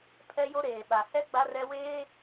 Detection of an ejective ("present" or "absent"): absent